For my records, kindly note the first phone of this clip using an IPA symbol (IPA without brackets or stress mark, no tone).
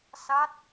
s